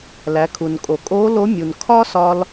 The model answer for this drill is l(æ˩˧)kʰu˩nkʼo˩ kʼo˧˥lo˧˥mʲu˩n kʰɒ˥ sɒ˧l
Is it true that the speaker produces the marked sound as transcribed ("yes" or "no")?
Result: yes